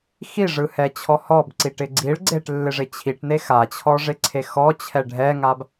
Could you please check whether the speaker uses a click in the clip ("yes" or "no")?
yes